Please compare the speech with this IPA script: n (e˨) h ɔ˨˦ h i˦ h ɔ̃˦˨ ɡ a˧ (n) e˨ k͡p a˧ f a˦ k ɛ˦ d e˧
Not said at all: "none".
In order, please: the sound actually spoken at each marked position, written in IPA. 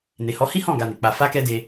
e˨, n

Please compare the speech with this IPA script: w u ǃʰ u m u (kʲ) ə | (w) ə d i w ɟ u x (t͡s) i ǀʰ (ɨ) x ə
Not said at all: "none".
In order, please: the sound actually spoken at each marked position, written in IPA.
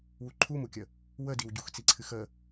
kʲ, w, t͡s, ɨ

